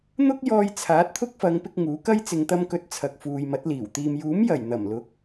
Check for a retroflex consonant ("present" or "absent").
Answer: absent